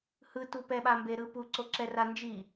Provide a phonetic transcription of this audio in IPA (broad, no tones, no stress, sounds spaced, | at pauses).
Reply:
h ɯ t u p ɛ ɓ a m b e ɾ ɯ p u ǀ o ǁ ɛ r a n d͡ʒ i